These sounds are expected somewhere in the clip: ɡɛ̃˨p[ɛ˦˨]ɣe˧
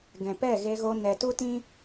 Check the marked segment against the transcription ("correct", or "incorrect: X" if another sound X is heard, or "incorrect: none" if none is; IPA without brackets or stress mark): correct